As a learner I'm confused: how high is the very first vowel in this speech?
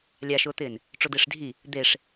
low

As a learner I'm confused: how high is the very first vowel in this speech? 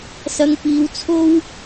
low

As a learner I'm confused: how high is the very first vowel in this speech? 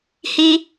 high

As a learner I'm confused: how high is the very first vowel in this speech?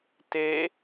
mid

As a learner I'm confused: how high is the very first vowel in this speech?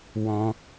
mid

